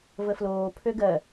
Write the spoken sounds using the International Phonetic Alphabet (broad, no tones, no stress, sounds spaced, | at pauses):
v ə f l oː pʰ ø ɡ ɜ